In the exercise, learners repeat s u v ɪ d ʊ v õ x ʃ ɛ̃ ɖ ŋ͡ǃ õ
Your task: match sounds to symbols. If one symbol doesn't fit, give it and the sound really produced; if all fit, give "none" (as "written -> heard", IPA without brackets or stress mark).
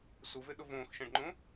d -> ɗ